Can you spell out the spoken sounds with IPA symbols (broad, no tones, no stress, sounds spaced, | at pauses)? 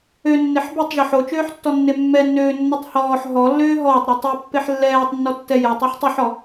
ø nː e ħ b e tˤ ʒ ɔ ħ o t͡ʃ øː ħ tː ɔ nː e mː ɛ nː øː nː ɔ tˤ h ɔː ħ ɦ ɔ lː øː ɦ ɔː tˤ ɾ u tˤ u pː e ħ lː ɛː tˤ nː ɔ tː ɛ j ɛ tˤ u ħ tˤ ø ħ ɔ